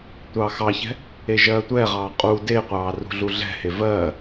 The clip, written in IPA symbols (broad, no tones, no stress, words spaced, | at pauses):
tʷɑːxɑçɛ̤ | eʒɜːtʷɛːʁɑː qʼu deqʷɑː rṳɮuɮɛ̤he vɜː